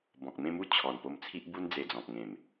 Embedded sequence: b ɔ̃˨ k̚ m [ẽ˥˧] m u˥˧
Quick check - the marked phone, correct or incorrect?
correct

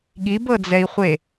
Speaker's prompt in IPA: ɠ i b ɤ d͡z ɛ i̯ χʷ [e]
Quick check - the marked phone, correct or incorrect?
correct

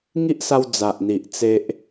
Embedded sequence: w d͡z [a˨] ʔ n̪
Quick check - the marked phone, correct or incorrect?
correct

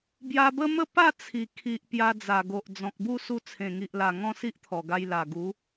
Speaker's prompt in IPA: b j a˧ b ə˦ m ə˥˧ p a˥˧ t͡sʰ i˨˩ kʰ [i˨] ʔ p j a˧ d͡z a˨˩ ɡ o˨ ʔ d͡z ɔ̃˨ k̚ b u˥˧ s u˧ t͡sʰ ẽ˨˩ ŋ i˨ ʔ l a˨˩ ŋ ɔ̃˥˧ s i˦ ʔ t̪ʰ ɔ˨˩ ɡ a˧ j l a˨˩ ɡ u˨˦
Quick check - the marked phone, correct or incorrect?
correct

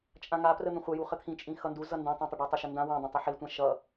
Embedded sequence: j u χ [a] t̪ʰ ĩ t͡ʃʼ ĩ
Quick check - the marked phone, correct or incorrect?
incorrect: ə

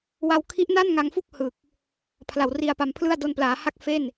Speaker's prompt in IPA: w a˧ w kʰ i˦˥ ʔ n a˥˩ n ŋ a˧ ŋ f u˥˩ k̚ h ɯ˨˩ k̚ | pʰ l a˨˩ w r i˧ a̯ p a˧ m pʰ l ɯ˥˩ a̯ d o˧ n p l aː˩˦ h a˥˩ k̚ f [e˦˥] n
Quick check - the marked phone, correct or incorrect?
incorrect: e˥˩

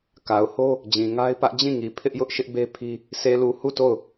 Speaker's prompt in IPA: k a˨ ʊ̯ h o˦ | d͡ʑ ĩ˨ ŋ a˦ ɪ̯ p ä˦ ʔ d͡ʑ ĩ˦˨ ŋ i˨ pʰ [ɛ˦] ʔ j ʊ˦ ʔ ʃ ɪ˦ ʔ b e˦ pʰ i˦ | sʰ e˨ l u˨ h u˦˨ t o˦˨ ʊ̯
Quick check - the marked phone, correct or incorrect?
incorrect: ɪ˦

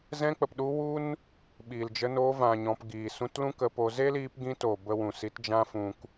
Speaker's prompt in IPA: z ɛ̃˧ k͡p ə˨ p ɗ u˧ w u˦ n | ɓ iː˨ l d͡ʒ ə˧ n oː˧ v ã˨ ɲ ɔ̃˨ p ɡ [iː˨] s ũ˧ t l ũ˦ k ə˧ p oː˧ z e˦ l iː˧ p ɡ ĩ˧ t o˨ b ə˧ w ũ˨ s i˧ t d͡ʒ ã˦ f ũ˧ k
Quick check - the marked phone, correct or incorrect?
correct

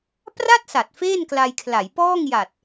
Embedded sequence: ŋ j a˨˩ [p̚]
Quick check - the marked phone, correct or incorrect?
incorrect: t̚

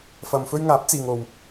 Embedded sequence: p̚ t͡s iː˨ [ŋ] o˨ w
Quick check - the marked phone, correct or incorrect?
correct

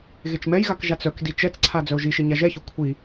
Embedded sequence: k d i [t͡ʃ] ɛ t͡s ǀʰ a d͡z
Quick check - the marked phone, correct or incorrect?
correct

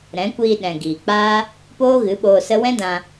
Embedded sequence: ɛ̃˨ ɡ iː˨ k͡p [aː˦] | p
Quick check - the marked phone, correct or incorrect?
correct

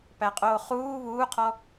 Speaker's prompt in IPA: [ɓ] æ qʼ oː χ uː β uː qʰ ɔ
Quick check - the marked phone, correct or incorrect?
incorrect: p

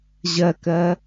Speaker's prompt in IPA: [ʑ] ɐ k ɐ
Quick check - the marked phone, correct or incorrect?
correct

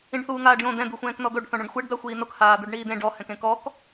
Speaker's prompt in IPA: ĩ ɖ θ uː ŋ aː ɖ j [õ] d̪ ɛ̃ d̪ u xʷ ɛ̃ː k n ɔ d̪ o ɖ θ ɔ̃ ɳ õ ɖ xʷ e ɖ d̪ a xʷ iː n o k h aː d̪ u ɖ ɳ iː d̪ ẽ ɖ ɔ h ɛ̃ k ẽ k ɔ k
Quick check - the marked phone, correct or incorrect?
correct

